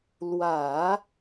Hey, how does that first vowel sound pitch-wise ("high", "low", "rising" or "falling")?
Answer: low